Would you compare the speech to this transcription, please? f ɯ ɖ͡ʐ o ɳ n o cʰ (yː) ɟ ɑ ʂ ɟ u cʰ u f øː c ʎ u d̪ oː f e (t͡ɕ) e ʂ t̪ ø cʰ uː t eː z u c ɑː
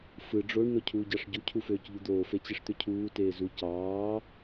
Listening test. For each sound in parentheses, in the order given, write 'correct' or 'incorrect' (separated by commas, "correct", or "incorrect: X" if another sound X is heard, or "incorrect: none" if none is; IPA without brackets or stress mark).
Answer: incorrect: uː, correct